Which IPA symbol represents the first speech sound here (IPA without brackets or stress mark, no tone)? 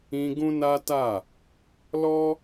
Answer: ĩ